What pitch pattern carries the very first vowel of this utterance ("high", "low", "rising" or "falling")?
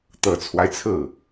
low